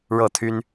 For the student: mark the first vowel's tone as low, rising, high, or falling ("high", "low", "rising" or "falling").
falling